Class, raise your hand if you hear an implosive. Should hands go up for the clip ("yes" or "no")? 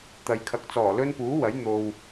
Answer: no